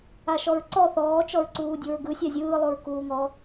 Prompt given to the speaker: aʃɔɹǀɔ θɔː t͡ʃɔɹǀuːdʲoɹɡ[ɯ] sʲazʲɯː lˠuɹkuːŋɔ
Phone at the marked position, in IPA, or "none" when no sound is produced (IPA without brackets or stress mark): ɯ